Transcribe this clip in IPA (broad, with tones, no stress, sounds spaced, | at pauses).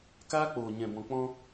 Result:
k aː˦ k͡p oː˨ ɲ ɛ̃˨ b ɔ̃˨ k͡p ɔ̃˧